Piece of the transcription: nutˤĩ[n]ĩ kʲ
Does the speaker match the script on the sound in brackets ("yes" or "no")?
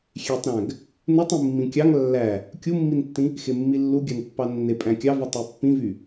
no